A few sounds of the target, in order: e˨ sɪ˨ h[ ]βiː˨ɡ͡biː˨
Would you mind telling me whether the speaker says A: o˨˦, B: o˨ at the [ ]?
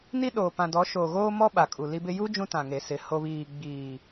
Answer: B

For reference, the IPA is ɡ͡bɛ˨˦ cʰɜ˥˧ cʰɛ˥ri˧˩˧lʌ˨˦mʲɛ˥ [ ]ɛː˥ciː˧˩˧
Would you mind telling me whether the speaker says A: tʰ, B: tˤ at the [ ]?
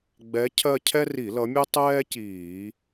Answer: B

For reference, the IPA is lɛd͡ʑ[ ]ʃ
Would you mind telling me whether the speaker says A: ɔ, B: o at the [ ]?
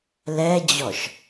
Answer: A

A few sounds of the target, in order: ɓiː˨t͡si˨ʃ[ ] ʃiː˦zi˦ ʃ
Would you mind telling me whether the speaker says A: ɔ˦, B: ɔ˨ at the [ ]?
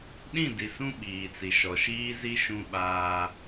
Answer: B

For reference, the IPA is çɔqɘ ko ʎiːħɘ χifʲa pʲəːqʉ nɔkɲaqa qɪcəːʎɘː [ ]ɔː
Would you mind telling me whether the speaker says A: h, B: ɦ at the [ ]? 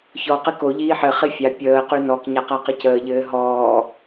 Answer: B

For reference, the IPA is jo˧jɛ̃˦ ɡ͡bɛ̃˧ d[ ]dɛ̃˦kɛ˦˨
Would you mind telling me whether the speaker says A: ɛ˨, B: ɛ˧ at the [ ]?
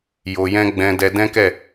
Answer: B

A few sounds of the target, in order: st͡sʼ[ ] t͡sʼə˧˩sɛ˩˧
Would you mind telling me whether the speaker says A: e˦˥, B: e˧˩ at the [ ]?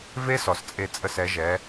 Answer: B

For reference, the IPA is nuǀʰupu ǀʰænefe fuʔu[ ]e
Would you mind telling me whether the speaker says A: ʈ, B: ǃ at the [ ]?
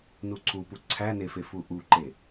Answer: B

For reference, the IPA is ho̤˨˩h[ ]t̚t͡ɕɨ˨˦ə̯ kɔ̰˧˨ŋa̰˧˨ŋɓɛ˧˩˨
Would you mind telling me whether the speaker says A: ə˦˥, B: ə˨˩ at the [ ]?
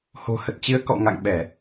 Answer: B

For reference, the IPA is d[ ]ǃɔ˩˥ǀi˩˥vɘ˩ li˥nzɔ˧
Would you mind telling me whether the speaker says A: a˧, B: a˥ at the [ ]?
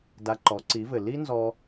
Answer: A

